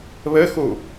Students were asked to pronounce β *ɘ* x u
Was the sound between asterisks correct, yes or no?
yes